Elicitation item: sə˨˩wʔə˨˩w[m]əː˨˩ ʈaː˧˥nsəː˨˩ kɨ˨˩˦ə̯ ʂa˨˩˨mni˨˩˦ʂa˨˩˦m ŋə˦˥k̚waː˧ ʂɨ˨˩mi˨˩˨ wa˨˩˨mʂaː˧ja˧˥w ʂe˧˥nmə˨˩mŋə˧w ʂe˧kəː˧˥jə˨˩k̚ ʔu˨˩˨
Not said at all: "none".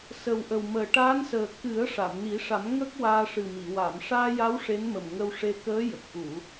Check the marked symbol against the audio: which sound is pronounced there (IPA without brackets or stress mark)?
m